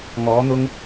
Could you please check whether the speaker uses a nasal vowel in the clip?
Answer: no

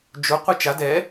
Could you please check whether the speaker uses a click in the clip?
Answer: no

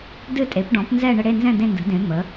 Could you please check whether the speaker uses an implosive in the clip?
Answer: no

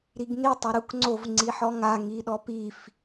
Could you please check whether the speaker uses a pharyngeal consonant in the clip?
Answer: yes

